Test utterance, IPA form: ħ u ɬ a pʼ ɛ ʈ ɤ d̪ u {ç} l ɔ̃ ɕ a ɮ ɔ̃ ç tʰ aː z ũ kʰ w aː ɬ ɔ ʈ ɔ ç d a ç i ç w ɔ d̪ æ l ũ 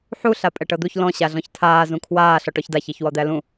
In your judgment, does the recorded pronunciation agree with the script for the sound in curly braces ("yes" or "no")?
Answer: yes